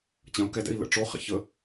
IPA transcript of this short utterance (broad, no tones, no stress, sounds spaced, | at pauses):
t͡ɕ ɐ̃ u̯ k ɛ d ɛ̰ i̯ l ə̰ ʈ͡ʂ o χ ɛ̰ ç ə